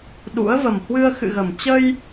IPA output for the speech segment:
ɗ ṵ˧˥ ə̯ v ə˨˩ m h w ɨ˧ ə̯ x ɨ̰˧˨ ɣ ə˨˩ m t͡ɕ ə˧ j

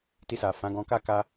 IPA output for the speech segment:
t i˧ s a˨ f ã˨˦ ɡ ɔ̃˧ k a˦ k a˧

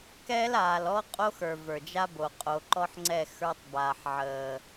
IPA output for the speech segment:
k ɛ˦ l aː˨ l ɔ˦ qʼ o˦ x ə˞˨ v ə˞˨ d͡ʒ a˦ b o˨ qʼ o˨ ǃ ɔ˦ ħ ŋ͡ǀ ɛ˦˨ x ə˞˦ tˤ b aː˨ ħ ʕ əː˨

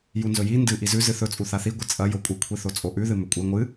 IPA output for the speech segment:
j u n z ɵ j i n d ɨ ʔ i z ʉ z ɨ θ ɵ t͡sʼ u θ a θ i ɡʷ ɨ t͡sʼ ɐ j o kʷʼ ɨ kʷʰ i θ o t͡sʼ o ʔ ʉ ð ɨ m ɵ kʷʼ e ŋʷ ɨ

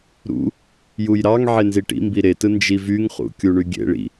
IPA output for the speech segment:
ɾ ṵ | j u j ɾ ɑ ŋ ʕ e n z i ʈ ḭ m b i ɾ e t ɯ n d͡ʒ i v y ŋ χ ṵ kʲ u ɳ y ɡʲ ḛ ɭ ḭ

